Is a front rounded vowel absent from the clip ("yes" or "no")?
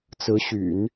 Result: no